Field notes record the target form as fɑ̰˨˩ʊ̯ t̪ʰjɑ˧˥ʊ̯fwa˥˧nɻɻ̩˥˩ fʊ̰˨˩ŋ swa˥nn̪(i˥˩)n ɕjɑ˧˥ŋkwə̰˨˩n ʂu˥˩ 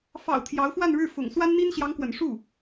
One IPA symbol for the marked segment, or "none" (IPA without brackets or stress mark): i˥